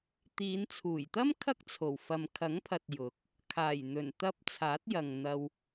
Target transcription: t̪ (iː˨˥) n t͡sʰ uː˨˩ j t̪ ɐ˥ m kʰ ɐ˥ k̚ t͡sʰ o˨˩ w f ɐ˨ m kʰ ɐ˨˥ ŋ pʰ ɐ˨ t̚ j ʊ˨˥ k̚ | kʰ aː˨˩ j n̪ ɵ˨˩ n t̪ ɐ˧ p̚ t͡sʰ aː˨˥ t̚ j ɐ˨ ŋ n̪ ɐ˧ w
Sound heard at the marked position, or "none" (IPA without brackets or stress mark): iː˨˧